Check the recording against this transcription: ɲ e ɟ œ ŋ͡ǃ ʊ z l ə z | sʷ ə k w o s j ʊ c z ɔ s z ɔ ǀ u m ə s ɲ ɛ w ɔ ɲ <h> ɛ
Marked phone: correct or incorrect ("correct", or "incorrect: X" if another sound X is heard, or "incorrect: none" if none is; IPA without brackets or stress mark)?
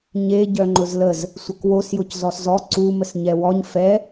incorrect: f